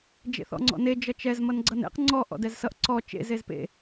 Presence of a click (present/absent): present